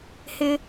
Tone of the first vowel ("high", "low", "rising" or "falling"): high